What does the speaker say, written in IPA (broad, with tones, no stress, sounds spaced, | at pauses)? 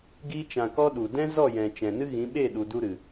ɡ iː˦ t͡ʃ ã˧ k ɔ˦ ɗ u˨ d ɛ̃˦ z ɔ˦˨ j ɛ̃˨ t͡ʃ ɛ̃˨ n ɨ˦ ɣ ĩ˨˦ ɓ e˦˨ ɗ u˨ d u˧ ɾ ɨ˨